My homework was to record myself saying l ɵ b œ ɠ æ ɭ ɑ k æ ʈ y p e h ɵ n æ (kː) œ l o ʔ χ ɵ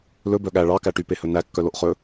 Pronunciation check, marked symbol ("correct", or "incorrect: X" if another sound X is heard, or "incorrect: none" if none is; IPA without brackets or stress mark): correct